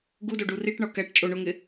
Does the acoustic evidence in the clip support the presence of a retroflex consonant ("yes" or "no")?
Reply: yes